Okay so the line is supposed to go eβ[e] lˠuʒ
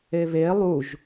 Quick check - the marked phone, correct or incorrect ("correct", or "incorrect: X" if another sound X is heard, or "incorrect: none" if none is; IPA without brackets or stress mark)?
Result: correct